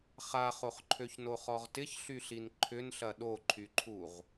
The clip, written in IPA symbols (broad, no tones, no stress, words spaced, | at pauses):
χaχoχǃʰøçno χɔʁtɪçɬyɬin ǃʰʏnɬɐ ɗoǃʰyǃʰuʁ